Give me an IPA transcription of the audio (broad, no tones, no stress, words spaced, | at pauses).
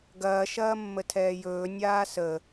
ɡɐː ʃɐːmːətʰɛːjɵː nʲaːsə